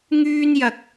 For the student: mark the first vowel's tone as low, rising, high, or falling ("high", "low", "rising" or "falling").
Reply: high